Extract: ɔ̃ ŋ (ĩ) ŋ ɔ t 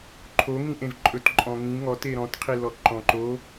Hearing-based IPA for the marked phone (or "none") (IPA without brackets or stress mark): ĩ